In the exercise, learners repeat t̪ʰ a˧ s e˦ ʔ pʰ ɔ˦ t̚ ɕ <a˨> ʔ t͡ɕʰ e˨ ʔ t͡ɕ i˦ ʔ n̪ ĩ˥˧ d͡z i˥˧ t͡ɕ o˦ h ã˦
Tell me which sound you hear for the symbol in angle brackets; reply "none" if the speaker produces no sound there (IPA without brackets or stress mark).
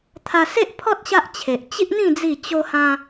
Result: a˦